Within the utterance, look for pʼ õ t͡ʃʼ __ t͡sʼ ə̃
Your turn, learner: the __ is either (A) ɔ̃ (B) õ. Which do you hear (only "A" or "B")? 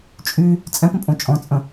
A